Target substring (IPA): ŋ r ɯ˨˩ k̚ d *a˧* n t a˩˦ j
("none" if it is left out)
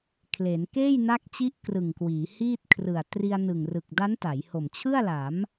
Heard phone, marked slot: a˦˥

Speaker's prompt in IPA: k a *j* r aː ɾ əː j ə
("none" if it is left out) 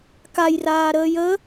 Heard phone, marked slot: j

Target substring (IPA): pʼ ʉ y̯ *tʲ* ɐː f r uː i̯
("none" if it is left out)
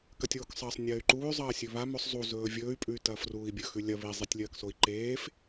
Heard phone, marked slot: t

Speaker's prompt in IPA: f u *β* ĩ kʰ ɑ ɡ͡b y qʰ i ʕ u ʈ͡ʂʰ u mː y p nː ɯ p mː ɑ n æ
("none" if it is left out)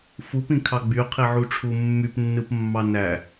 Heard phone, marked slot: p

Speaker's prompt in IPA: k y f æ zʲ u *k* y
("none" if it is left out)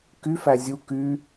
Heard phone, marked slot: k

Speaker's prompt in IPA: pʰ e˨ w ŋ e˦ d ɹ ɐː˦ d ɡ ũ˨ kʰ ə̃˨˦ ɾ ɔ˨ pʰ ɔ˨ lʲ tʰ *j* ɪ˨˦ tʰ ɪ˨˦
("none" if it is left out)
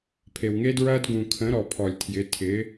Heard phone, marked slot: j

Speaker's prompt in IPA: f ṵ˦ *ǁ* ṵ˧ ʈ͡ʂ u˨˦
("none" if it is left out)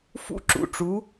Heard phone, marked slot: ǁ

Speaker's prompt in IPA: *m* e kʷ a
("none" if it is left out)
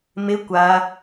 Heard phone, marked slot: m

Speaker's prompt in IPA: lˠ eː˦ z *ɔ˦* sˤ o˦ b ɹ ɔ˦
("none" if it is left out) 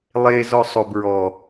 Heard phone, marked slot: ɔ˦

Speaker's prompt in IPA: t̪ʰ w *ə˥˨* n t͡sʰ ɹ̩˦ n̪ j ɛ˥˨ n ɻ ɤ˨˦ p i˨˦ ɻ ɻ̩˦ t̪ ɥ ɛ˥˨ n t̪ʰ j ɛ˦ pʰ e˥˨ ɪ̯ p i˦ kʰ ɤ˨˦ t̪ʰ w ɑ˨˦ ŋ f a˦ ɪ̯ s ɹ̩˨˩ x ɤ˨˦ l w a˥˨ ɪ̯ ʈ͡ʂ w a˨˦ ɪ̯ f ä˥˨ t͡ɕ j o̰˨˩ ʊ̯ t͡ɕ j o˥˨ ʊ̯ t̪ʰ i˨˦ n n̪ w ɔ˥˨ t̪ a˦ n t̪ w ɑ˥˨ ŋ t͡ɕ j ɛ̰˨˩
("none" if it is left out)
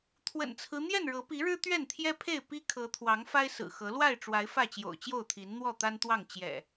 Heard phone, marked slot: ə̰˨˩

